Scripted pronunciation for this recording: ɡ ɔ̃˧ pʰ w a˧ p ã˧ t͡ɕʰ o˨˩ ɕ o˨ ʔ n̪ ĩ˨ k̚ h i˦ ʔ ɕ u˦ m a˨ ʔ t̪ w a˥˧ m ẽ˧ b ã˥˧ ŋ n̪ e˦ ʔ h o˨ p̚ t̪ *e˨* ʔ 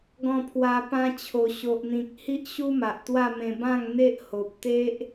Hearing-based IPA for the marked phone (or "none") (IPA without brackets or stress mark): e˦